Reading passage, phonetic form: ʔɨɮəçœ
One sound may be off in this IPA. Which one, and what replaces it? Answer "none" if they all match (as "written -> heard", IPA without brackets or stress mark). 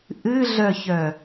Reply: ə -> œ